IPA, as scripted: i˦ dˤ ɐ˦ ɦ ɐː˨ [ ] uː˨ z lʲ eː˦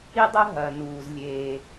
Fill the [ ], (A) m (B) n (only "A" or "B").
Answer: B